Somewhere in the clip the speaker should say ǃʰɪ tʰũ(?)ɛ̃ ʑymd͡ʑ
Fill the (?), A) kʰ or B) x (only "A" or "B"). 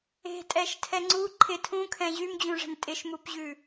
A